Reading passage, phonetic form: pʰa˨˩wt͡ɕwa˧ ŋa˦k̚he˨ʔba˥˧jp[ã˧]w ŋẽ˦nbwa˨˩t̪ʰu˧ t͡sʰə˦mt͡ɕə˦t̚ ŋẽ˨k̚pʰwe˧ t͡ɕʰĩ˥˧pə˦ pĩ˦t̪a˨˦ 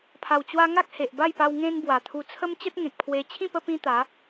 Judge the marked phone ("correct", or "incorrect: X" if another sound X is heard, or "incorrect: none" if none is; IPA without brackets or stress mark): incorrect: a˧